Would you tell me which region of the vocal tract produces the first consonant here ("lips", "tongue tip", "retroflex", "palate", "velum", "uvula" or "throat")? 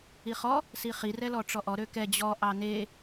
uvula